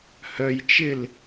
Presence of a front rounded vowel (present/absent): present